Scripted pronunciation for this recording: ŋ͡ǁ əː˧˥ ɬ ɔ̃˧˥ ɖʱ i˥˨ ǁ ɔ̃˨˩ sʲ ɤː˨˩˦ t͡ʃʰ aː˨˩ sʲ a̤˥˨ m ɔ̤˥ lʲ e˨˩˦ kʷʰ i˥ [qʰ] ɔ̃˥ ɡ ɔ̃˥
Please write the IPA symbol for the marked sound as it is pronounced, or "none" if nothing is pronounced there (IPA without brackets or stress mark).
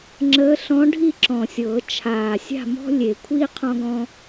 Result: qʰ